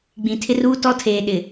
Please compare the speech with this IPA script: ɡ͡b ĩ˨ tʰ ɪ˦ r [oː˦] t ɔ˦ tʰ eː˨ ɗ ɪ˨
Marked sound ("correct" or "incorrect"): incorrect